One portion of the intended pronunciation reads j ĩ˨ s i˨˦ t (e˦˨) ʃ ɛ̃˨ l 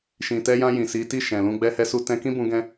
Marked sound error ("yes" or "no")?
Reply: yes